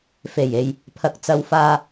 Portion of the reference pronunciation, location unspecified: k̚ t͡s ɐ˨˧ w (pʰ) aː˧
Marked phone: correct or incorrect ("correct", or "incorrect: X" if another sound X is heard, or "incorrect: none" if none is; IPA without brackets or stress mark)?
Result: incorrect: f